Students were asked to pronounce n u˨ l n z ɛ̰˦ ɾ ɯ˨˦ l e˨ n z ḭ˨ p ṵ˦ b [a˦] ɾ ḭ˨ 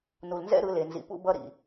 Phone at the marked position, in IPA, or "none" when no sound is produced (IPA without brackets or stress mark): ʌ˦